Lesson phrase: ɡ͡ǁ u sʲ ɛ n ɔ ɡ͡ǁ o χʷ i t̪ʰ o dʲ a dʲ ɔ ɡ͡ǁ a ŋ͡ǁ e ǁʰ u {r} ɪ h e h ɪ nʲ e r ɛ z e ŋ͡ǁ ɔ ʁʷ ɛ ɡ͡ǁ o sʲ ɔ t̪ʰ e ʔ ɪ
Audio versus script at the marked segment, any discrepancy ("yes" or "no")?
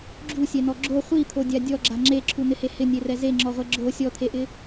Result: yes